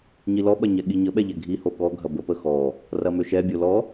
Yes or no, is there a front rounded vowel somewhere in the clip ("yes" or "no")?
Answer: yes